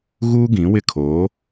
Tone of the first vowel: high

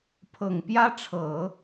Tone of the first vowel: low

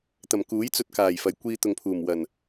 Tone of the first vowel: low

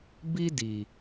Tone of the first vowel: high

